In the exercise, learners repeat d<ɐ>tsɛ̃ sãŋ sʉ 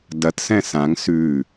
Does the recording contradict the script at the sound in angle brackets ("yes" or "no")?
no